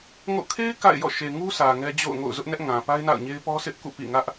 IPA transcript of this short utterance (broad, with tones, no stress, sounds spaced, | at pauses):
ŋ o̰˦˨ kʰ e˦ ɪ̯ k a̰˦˨ ɪ̯ j ɔ̰˦˨ ʃ e˨ ŋ u˦ sʰ ä˨ ŋ ɛ˦ d͡ʑ o̰˦˨ ʊ̯ ŋ o̰˦˨ ʊ̯ z ʊ˦ ʔ n ɛ˦ ʔ ŋ ã˨ p a˦ ɪ̯ n a̰˦˨ ʊ̯ ɲ e˦ ɪ̯ p ɔ˦ sʰ ɪ˦ ʔ k ṵ˦˨ p ḭ˦˨ ŋ ä˦ ʔ